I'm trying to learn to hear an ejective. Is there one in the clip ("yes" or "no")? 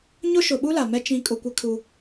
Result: yes